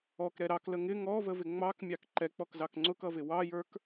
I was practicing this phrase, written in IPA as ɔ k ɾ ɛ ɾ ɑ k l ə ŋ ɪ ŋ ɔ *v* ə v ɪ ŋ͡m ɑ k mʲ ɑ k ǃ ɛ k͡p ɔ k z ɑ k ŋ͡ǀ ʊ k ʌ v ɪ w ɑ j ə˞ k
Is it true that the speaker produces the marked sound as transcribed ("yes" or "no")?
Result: yes